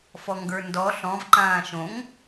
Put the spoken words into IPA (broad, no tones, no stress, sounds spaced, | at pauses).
f ɔ ŋ ɡ ə˞ n d ɔ ɬ ɔ̃ v ǃ ãː ʃ õ ŋ